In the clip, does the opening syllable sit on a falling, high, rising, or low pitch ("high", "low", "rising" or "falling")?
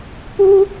high